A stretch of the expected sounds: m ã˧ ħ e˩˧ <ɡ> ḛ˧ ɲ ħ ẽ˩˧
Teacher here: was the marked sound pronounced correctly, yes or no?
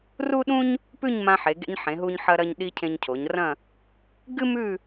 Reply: yes